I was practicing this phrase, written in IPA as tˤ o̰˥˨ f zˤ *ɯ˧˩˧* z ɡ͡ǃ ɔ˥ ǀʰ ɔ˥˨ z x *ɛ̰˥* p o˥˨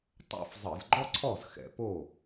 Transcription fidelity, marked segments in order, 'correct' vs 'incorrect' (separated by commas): correct, incorrect